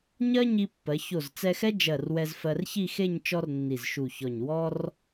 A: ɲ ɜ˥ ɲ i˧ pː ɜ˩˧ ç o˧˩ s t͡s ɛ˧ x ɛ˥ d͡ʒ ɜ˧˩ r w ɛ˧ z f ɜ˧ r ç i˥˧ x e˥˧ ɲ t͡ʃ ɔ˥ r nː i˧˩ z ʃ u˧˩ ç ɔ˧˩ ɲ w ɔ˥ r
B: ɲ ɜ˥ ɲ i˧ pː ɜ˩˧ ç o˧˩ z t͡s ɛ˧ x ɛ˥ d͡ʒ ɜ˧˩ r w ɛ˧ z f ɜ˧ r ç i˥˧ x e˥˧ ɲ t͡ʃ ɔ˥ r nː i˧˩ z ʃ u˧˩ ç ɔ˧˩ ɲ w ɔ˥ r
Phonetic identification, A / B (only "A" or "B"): B